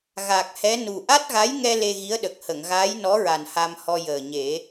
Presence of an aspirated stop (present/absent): absent